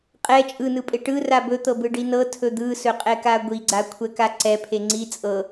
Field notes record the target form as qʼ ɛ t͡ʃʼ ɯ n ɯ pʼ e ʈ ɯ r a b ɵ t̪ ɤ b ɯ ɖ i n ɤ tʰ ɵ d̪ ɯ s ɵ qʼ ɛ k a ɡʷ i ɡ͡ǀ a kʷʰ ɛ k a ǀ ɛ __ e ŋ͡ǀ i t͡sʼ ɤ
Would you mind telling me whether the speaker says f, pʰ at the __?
pʰ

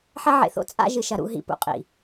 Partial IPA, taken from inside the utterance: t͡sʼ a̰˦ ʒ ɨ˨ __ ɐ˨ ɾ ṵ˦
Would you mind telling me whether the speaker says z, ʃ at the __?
ʃ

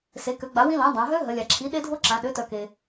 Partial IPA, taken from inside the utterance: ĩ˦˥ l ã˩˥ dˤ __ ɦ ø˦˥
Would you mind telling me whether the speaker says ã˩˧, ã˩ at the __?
ã˩˧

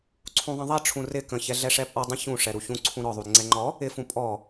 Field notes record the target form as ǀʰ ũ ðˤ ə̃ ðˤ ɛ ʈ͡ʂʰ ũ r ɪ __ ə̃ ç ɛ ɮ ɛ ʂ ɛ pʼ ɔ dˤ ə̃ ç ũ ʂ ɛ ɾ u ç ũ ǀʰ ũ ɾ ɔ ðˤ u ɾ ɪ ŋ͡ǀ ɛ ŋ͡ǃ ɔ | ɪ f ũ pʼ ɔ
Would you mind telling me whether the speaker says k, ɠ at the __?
k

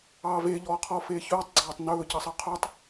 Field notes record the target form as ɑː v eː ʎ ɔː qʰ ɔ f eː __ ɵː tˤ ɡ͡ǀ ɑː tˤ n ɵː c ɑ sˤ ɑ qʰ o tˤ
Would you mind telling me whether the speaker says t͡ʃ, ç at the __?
ç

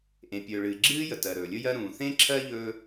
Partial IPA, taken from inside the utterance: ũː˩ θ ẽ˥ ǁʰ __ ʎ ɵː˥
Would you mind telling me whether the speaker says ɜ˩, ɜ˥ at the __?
ɜ˥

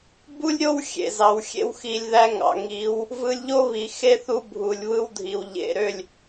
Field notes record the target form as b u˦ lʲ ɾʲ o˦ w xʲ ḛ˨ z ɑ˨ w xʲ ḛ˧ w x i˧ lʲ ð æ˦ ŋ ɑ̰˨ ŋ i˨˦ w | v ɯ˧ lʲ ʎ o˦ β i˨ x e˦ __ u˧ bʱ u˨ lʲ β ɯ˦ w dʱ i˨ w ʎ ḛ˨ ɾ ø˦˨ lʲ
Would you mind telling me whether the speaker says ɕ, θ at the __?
θ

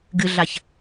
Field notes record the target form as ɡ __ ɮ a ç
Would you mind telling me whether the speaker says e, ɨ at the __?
ɨ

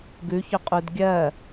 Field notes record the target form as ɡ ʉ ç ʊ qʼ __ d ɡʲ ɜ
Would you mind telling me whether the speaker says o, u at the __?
u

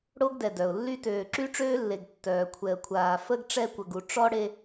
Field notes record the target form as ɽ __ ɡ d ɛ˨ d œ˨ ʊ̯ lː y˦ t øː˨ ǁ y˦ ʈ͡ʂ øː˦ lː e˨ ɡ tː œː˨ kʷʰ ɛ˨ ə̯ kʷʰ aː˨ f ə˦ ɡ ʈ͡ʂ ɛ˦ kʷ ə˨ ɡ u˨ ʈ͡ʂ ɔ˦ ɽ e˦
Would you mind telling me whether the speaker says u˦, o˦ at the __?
o˦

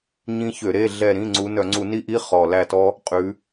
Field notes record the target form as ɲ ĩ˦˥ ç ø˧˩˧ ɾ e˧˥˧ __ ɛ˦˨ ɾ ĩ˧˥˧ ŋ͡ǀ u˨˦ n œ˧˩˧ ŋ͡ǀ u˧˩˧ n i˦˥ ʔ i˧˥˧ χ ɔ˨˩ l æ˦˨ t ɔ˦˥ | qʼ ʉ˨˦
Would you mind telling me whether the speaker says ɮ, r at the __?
ɮ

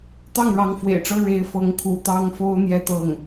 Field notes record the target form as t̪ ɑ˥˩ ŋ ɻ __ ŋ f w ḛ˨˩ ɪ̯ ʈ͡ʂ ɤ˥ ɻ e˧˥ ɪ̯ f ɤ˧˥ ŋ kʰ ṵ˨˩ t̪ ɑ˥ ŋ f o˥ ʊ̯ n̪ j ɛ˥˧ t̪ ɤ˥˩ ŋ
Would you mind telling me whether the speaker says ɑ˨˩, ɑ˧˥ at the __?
ɑ˧˥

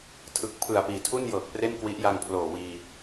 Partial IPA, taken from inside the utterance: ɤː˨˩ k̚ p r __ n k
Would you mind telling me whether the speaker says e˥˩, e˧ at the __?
e˥˩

